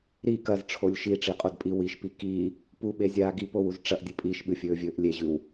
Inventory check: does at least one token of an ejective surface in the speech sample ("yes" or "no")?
yes